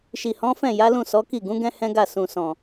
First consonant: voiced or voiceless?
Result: voiceless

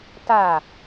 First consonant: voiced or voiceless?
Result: voiceless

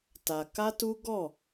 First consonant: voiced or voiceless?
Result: voiceless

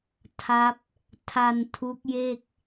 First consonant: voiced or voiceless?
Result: voiceless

